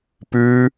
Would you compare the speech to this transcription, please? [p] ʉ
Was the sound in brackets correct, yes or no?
yes